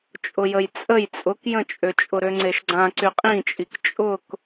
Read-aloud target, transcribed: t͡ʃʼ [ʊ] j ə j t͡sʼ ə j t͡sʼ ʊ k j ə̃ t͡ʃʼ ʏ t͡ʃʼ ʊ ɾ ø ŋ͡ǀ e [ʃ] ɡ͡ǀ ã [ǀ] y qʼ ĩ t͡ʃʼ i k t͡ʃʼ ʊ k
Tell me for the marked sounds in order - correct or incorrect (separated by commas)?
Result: correct, correct, correct